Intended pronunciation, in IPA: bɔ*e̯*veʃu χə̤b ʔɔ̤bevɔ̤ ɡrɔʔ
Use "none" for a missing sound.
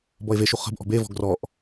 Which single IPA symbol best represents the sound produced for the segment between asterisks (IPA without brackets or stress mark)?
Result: e̯